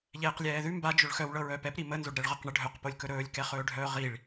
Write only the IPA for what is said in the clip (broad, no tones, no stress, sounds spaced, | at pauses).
ʎ ɛː q lʲ ɛː ð ʉ m b a d͡ʒ ɵ ɭ x œ w ɭ ɤ ɹ œː p ɛ p ɾ i m ə n z o ɖ ɾ ɛ ɭ ʁ ɤ q ɳ ə ɖʱ œ q p o lʲ k ɵ ɾ ɵː lʲ k ɛ χ ɵː ɖʱ œː ʁ i ɭ